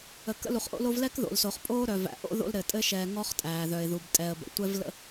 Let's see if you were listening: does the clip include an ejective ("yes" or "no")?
yes